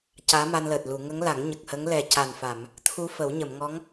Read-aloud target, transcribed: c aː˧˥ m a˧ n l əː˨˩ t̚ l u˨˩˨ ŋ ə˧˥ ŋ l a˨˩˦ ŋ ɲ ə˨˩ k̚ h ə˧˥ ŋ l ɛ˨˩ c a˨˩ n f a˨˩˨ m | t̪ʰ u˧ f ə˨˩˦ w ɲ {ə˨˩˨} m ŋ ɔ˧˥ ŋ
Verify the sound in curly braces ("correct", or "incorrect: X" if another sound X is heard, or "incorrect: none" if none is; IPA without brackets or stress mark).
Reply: correct